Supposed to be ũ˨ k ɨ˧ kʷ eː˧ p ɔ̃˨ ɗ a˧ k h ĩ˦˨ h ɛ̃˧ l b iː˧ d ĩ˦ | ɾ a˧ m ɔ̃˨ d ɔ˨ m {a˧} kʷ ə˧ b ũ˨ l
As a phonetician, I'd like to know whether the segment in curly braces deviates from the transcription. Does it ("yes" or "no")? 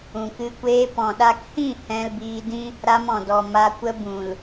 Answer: no